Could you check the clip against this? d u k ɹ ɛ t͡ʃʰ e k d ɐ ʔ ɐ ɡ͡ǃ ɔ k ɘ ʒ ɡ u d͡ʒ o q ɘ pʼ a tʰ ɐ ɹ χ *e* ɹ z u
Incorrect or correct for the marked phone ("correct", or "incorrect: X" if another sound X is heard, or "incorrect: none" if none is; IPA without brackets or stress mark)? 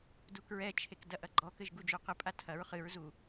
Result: incorrect: ɨ